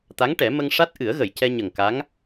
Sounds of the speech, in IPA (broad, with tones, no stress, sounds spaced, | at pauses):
t̪ a˧˥ ŋ ʈ ɛ˨˩˦ m ə˧ ŋ ʂ a˦˥ t̚ ʔ ɨ˨˩˦ ə̯ ɣ ə˨˩˨ j c ɛ˧ ɲ ə˨˩ ŋ k a˧˥ ŋ